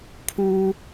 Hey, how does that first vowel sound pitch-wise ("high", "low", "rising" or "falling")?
high